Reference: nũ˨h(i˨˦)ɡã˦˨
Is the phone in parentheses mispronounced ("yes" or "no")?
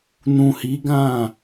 no